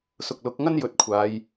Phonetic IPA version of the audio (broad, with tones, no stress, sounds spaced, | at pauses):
s ʊ˨ k̚ l ʊ˨˥ k̚ ŋ ɐ˥ n j ɵ˨˥ t̚ kʷʰ aː˨˧ j